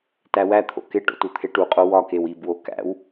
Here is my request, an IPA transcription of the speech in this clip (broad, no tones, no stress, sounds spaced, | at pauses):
t æ w æ t̪ʰ o̰ k e ʈ o̰ t u t̪ʰ e ʈ u qʼ o w ɒ k e w i b w o k æ̰ w